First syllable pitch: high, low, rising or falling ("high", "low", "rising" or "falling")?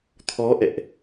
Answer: rising